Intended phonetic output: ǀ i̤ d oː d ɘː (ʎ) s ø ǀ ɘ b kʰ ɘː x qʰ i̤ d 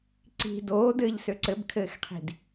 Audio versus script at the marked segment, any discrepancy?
no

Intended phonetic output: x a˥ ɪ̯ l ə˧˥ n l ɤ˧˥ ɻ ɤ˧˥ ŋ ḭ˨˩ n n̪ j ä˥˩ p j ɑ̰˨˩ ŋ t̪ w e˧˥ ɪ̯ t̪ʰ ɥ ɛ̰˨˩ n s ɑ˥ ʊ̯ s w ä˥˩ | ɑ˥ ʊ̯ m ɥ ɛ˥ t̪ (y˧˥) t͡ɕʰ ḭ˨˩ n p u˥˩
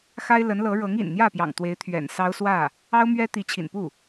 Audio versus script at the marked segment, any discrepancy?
yes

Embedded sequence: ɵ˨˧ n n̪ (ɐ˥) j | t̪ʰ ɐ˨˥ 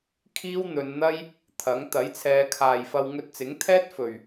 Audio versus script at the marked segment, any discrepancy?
no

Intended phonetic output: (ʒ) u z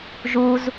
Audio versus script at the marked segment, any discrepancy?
no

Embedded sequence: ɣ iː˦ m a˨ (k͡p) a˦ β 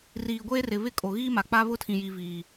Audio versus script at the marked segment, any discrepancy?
no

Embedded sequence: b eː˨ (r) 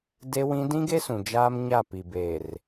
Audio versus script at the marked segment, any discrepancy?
no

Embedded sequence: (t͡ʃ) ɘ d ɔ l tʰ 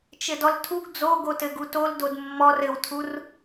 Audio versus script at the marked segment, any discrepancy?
no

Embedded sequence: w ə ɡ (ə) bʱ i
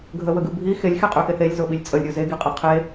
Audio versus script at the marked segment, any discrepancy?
yes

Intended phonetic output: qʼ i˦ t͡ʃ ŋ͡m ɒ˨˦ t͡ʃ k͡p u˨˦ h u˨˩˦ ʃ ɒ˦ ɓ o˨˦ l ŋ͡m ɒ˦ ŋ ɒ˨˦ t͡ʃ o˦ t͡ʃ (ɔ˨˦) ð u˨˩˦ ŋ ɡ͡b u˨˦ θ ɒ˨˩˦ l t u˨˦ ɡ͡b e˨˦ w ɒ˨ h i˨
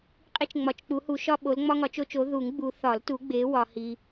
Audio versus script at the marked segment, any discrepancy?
yes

